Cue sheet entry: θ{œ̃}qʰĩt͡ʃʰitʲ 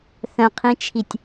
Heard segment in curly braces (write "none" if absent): œ̃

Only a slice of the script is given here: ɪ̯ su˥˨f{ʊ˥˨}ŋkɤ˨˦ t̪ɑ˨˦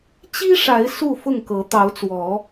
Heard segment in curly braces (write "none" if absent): ʊ˥˨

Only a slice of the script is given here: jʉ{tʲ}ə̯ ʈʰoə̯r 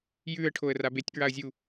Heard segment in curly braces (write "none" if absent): none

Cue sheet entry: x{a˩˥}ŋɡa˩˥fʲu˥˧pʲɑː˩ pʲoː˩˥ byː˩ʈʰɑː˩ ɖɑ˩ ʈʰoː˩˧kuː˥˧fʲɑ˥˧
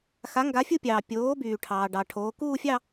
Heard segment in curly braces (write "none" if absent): a˩˥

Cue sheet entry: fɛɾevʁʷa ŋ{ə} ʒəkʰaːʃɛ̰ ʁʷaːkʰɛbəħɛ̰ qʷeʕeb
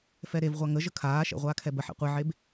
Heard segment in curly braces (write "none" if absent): ə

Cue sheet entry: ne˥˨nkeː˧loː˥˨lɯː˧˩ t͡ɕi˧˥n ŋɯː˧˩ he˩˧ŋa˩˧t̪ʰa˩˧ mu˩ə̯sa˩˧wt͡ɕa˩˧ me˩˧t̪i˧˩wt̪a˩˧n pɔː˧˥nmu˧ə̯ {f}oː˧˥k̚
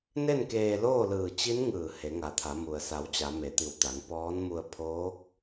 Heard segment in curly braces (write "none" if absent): pʰ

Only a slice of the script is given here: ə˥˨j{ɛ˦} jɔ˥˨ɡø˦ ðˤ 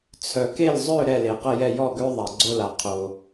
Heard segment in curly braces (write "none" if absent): ɛ˥˨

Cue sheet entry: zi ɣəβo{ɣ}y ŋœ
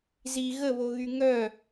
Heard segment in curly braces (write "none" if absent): ɣ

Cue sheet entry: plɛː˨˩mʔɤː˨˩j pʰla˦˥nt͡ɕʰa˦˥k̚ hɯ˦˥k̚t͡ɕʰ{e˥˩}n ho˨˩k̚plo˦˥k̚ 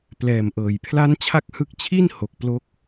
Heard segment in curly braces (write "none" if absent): i˥˩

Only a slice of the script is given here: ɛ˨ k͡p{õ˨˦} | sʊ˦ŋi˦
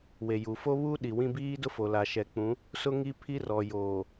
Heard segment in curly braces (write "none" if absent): ũ˨˦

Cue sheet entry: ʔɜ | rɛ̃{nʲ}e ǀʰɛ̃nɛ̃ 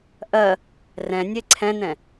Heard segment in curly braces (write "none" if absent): nʲ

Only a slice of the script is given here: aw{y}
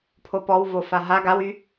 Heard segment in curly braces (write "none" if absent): y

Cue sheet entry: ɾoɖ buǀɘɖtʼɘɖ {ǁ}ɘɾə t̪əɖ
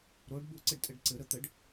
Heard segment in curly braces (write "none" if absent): ǀ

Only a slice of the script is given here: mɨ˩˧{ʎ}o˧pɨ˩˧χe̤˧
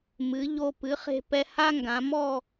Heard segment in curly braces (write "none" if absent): ʎ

